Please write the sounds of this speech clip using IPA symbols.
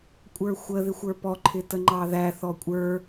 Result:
kʷʼ ə˞ xʷ ə ð ɪ xʷ ə˞ p ɔ ǃʰ ɪ t ə ŋ͡ǃ ɑ ð æ θ ɔ kʷʼ ə˞

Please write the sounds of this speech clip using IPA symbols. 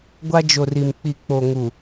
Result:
ɡʷ a˦ d͡ʒ o˨ r i˨ m k͡p i˨ k͡p o˨ ŋ u˨

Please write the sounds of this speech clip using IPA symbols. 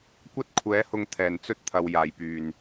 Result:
kʷ ɐ˥ t̚ kʷʰ ɛː˨˥ h ʊ˧ ŋ t̪ʰ ɛː˨˩ n t͡s ɵ˥ t̚ t̪ʰ ɐ˨ w j aː˨˩ j p yː˨˩ n

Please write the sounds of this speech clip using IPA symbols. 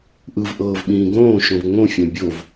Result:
ʔ ɯ v ʔ ɤː v ɓ ĩː ɡ õː ʃ õ v ŋ õ fʲ ã bʲ o v

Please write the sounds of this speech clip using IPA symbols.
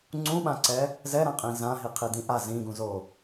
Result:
ŋ͡ǀ ũ ɓ ã ǀ ɛ | z ɛ ɾ ã qʼ ĩ z ã ɦ i qʰ i d ĩ ʔ a z ĩ ɡ ũ z o

